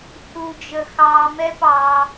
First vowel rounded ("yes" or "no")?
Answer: yes